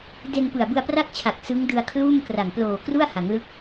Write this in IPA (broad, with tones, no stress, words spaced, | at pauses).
de˧npɯ˨˩a̯ bɯ˧a̯pra˥˩k̚t͡ɕʰa˨˩k̚ sɯ˦˥ŋ dɯ˧a̯kʰluː˥˩mkra˨˩ŋ ploː˨˩kru˥˩a̯ ha˩˦ŋlɯ˦˥k̚